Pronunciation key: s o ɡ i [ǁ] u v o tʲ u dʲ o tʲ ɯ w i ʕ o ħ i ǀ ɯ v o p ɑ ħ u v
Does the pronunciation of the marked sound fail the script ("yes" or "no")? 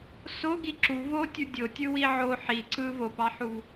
no